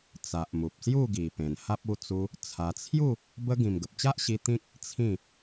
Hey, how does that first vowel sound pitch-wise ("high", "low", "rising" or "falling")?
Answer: low